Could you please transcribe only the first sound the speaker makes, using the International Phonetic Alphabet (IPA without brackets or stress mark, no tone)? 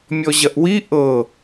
mʲ